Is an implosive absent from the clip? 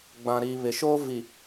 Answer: yes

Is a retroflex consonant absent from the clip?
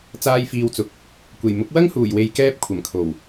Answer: yes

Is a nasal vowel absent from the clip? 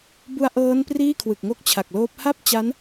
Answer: yes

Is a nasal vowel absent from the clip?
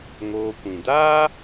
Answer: no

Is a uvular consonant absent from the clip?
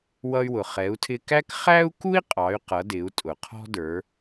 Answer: no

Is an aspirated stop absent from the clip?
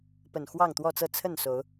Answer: no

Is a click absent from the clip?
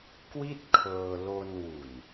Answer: yes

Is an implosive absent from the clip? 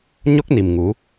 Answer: yes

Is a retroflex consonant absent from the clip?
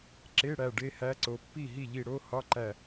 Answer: no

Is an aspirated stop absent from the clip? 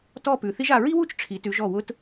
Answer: no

